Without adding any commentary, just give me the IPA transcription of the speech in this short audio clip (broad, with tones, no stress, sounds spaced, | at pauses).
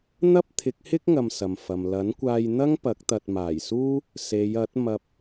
n̪ ɐ˥ p̚ t̪ʰ ɪ˨˥ k̚ h ɪ˥ k̚ ŋ ɐ˧ m s ɐ˨ m f ɐ˨ m l ɐ˨˥ n kʷ aː˧ j n̪ ɐ˥ ŋ p ɐ˨˥ k̚ t̪ ɐ˨ t̚ m aː˨˩ j s uː˥ | s e˨˧ j ɐ˨˥ t̚ m ɐ˧ p̚